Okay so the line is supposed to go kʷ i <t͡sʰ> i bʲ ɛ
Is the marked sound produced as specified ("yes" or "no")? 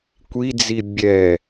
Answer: no